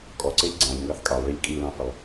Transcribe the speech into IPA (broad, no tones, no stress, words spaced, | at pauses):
kʼɔǀeʎ ɡ͡ǀɑ̃ʎŋɡɑθ kʼɑlˠɭilʲ kʼilɑ̃fɪlˠ